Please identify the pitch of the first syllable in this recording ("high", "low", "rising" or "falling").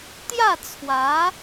falling